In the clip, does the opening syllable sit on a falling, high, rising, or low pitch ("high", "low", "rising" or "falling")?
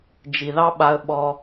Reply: low